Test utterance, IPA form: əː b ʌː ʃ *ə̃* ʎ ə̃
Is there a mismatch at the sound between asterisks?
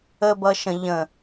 no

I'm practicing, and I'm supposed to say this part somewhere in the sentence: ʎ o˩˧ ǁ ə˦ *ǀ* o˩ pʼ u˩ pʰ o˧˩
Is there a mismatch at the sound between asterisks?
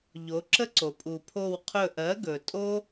no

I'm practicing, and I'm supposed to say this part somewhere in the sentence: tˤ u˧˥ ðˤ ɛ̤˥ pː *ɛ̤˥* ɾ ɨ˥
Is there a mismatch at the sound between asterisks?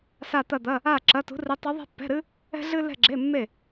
yes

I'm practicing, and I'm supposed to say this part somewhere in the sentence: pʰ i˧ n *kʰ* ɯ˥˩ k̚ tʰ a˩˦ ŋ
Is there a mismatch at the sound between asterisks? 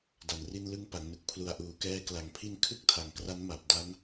no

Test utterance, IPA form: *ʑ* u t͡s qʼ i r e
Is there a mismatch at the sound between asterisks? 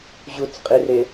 no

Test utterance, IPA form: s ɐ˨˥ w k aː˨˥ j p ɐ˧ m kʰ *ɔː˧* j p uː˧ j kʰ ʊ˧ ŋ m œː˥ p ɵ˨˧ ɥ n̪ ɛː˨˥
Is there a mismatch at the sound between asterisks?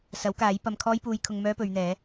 yes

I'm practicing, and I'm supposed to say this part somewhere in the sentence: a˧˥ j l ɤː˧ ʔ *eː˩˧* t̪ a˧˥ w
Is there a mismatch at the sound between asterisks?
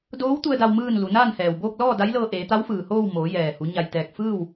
no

